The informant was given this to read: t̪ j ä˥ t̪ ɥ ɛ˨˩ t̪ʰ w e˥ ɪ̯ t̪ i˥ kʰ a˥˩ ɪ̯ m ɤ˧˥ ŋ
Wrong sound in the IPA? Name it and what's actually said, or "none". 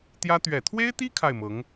none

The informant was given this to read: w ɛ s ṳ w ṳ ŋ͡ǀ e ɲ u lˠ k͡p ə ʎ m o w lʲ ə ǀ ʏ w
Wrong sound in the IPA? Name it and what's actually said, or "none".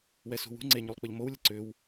none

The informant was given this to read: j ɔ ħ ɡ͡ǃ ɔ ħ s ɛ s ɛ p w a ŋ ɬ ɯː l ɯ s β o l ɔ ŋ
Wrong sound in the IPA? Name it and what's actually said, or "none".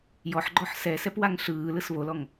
none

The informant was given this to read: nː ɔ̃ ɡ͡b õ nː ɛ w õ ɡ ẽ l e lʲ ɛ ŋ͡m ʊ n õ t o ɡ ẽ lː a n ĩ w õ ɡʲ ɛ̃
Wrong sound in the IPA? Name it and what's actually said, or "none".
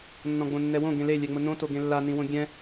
none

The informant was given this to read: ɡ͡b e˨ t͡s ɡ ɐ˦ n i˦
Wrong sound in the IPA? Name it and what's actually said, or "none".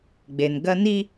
t͡s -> n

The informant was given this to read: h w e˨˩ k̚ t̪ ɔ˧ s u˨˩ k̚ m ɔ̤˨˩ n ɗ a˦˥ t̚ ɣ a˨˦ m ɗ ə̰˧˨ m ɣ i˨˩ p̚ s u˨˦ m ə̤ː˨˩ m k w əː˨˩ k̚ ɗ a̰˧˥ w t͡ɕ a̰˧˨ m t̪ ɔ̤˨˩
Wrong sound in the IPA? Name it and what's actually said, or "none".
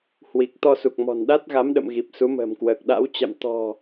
e˨˩ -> i˨˩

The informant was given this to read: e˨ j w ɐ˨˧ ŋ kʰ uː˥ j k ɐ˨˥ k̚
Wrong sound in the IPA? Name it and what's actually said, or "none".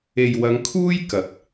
none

